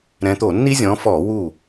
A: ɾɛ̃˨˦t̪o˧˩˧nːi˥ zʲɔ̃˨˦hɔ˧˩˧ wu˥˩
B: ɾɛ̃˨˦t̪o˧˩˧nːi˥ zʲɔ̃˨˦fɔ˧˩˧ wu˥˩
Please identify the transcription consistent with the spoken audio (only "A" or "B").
B